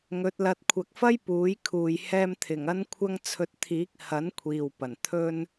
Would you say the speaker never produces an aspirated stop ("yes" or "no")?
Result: no